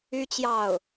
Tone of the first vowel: high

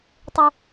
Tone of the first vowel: low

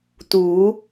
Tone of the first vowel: rising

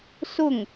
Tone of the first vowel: falling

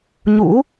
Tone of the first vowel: rising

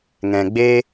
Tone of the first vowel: low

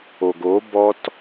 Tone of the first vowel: low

